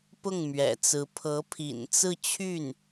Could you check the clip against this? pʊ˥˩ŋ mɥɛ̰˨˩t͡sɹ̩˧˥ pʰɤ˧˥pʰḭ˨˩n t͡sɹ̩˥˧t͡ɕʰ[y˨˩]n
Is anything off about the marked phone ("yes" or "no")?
yes